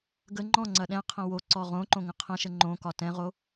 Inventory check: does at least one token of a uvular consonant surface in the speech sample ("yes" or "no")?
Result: yes